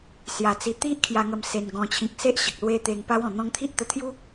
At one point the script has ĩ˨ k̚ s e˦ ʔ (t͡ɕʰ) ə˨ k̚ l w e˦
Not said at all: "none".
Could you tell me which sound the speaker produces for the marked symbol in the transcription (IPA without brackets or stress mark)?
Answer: ɕ